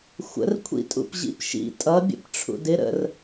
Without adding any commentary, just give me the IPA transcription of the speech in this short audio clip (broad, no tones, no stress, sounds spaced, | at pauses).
xʷ ə̰ r kʷʰ ḭ tʼ ṵ p ʑ ḭ p ʃ ḭ tʼ ʌ bʲ ə̰ p ʈ͡ʂʰ ṵ d ɪ ɾ ə̰ r